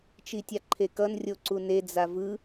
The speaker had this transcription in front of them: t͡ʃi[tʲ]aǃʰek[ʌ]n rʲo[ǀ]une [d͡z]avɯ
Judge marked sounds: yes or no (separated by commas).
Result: yes, yes, yes, yes